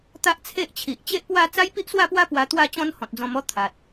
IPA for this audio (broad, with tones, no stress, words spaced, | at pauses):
t̪a˦ʔt͡sʰe˦ʔt͡ɕʰi˨ʔ t͡ɕe˦ʔpwa˥˧ t͡sa˦jpi˦ʔswa˥˧pwa˦ pwa˧t̪wa˥˧t͡ɕɔ̃˦n hɔ̃˨t̚d͡zɔ̃˧mɔ˦ t̪ʰa˨t̚